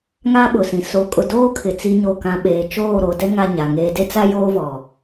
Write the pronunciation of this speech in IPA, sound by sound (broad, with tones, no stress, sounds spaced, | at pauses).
ŋ aː˦ ɓ ʊ˨ s ĩ˨ s o˨˦ kʼ ʊ˨ d oː˦ kʰ ɪ˨ t͡s i˦ ɲ o˦˨ k ã˦ ɓ eː˨ t͡ʃ oː˦˨ ɾ o˨ d ɛ˦ ŋ a˦ ɲ a˨ ŋ eː˦ d e˦ t͡s a˦ j oː˦ v ɔ˨